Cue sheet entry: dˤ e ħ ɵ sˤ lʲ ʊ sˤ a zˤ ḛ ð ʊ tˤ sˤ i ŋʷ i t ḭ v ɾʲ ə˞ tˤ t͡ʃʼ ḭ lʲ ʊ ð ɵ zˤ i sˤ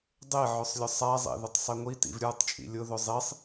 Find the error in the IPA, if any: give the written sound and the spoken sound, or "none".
ħ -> ʕ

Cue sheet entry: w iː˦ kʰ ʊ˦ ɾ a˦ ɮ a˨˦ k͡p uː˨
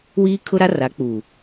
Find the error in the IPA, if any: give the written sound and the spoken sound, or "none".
ɮ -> r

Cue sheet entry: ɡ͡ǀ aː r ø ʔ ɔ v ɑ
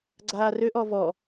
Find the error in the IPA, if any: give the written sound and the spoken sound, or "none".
ɑ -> ɔ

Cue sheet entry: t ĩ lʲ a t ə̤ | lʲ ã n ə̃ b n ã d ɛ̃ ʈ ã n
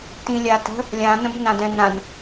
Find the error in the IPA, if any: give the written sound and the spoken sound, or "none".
ʈ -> n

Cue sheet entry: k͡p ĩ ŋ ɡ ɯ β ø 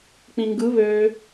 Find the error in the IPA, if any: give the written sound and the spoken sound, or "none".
none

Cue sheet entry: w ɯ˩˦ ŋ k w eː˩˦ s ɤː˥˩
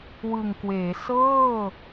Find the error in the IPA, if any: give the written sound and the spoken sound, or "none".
ɯ˩˦ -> ɯ˨˩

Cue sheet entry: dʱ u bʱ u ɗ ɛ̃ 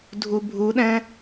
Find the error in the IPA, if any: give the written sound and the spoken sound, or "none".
none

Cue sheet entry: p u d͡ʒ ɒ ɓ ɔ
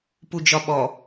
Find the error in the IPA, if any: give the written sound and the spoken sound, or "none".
none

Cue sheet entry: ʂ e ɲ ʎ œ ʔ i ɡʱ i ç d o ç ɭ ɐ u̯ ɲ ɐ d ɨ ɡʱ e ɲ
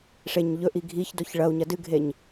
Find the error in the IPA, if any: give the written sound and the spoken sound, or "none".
œ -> ɵ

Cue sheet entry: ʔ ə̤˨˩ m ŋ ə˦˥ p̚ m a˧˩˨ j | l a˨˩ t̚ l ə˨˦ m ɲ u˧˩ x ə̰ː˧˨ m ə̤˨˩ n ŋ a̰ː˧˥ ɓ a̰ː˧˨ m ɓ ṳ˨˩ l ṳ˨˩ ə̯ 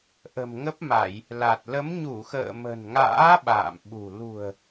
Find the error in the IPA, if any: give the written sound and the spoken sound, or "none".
none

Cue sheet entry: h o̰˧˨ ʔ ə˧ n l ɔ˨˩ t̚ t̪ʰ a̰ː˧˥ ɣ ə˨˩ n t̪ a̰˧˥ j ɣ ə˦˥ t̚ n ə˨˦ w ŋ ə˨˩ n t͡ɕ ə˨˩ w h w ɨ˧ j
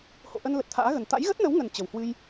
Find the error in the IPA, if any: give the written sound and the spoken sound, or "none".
ɔ˨˩ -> ə˨˩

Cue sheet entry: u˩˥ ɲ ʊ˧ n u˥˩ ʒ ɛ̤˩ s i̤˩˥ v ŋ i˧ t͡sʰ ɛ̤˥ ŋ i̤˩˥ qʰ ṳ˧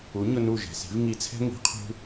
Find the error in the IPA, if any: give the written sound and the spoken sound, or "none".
none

